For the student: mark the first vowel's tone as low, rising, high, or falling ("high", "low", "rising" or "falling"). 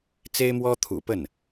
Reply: high